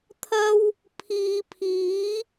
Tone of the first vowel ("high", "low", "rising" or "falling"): high